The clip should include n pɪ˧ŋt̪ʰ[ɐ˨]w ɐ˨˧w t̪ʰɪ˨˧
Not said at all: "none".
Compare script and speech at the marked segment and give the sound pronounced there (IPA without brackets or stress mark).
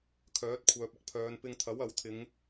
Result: ɐ˨˥